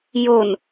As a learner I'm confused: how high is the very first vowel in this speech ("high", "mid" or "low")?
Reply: mid